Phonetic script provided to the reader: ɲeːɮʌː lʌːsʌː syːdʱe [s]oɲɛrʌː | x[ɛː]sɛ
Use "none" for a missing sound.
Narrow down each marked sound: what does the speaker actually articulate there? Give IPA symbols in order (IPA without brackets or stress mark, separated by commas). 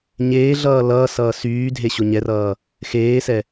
ɕ, eː